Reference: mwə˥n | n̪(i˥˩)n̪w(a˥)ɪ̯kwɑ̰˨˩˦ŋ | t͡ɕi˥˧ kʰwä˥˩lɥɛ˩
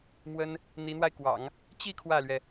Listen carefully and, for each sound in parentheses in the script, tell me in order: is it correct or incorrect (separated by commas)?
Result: incorrect, incorrect